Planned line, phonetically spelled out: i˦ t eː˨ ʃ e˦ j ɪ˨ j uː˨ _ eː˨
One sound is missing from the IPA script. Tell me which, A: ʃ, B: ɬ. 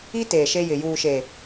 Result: A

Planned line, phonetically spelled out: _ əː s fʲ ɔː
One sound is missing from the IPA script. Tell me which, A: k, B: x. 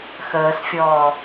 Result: B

